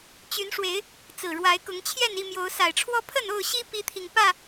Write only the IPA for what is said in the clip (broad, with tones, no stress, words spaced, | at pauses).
t͡ɕy˨˦nʂwe˨˦ɪ̯ | t͡sɹ̩˨˩ɻwa˨˦ɪ̯kʊ˨˦ŋ t͡ɕʰjɛ˥˨ni˥˨mjo˨˦ʊ̯ sa˨˩ɪ̯ʈ͡ʂʰwɔ˦ pʰə˥˨no˥˨ʊ̯ɕi˦ pi˦t̪ʰi˨ŋ pä˥˨